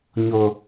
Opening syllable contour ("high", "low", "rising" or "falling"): low